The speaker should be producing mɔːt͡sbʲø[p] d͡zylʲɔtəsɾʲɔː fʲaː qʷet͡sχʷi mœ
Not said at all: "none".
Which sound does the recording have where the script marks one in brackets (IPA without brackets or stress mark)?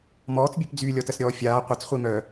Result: p